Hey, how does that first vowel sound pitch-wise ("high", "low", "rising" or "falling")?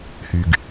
low